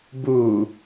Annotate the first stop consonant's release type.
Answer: plain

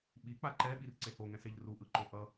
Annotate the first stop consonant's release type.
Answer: implosive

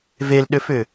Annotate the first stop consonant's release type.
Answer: implosive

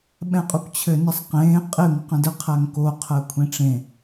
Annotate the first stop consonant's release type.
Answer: implosive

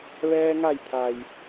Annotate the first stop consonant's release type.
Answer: aspirated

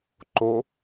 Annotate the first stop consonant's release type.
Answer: click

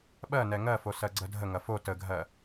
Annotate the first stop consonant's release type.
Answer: implosive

